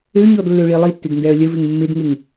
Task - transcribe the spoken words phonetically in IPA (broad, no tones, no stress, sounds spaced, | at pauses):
ø ɲ ɔ d lː ø ɭ i lˠ i tː ʏ d n d ɛ ə̯ lʲ ə v ɪ ŋ mː ɪ d ŋ ɪ ŋ